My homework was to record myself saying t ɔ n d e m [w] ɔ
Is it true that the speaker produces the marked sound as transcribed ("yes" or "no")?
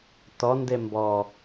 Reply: no